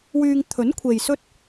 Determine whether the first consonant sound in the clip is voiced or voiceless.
voiced